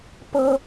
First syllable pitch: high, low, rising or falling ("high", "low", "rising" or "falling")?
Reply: high